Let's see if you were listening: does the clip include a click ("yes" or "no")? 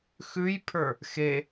no